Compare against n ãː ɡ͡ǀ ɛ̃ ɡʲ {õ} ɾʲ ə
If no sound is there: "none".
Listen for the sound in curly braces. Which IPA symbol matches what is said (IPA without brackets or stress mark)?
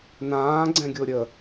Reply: o